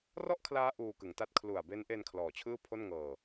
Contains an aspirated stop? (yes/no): yes